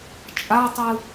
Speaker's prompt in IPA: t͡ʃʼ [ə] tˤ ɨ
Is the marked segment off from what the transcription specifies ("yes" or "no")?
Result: yes